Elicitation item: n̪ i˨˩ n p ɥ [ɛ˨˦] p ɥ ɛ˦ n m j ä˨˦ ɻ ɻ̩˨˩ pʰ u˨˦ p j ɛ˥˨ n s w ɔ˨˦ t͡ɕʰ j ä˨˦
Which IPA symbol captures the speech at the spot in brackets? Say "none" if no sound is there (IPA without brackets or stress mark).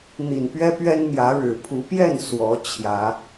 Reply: ɛ˦